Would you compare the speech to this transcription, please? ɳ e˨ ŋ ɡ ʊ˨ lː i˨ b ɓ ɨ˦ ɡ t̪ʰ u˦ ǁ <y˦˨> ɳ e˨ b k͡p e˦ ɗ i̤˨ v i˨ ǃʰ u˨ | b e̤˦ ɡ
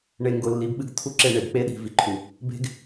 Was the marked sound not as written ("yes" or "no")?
yes